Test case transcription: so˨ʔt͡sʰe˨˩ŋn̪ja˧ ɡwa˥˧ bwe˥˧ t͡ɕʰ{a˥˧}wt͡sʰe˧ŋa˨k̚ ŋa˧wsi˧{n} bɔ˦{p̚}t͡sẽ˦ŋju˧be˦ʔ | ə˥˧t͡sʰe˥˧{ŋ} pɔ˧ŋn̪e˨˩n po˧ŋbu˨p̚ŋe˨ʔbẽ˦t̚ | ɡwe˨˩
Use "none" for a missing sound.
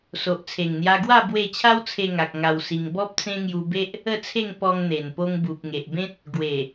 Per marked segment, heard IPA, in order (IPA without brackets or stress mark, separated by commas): a˦, ŋ, p̚, ŋ